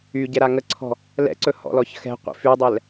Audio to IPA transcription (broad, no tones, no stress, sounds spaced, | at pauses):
y ɟ ɛ ɾ a ŋ ə ǀʰ ɔ̤ | l ɛ̰ ǀ ɵ h ɔ̰ l ɔ ç x ɛ̤ qʷ ḭ f y dˤ ɛ l